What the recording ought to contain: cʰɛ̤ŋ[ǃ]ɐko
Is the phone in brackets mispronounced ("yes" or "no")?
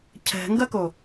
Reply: yes